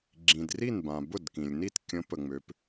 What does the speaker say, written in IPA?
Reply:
ɡ͡ǁ ĩ˩ d r i˥˩ n b ã˩ b ʊ˥˩ d k ĩ˩ lʲ n i˥˩ t kʲ ə̃˨˥ p ə˩ ŋ͡m ø˩˧ p

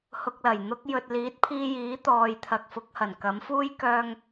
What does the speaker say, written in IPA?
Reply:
h ʊ˨ k̚ l ɐ˨˩ j n̪ ʊ˧ k̚ j ɵ˨ t̚ l iː˨˥ t̚ pʰ iː˧ j iː˨˥ t̪ ɔː˨ j t̪ʰ ɐ˨ k̚ f ʊ˨˥ k̚ h ɐ˨˩ n k ɐ˨˥ m f uː˥ j k œː˧ ŋ

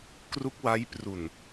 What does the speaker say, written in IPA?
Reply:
k r u˦˥ k̚ w a˦˥ j p r u˨˩ n

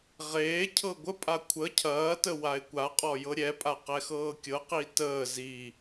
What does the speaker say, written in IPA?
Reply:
ʁ eː cʰ ɤ ɡʷ ə pʼ a kʷʰ ə cʰ ɐː t ə w a ɪ̯ kʷ a qʼ ɔ j ɤ ɾʲ ɛ pʼ a q ɛ x ɤː kʲ ɤ q i t əː z i

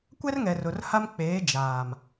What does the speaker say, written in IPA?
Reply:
kʷ ɛ˦ r ŋ ɛ˨ r ʊ˨ r h a˦ m k͡p eː˨˦ d͡ʒ aː˨ m

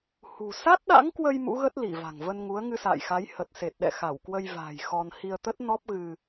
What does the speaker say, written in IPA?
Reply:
h ṳ˨˩ s a˦˥ t̚ ɗ a̰˧˥ ŋ k w ə˧ j m ṵ˧˥ ɣ ə˦˥ t̚ l i˧˩ v a̤˨˩ ŋ v ə˧ n ŋ u˨˦ ə̯ ŋ ɨ˧ s a̰ː˧˨ j x a˨˦ j h ə˨˩ t̚ s e˨˩ t̚ ɗ ɛ̰˧˨ x a˧˩ w k w ə˧ j v a̤ː˨˩ j x ɔ˧ n h i˧ ə̯ t̪ ə˦˥ t̚ n ɔ˦˥ p̚ ɣ ɨ˧

